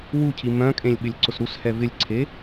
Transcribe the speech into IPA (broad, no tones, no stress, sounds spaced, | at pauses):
w u cʰ i m œ̃ kʼ ẽ lʲ ɓ ɪ lʲ ǀ ʊ s ɾ u s h ɛ v ɪ lʲ ǀʰ e